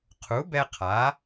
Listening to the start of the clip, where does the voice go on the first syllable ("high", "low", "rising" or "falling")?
rising